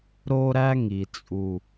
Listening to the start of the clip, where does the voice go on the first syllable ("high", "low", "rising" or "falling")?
high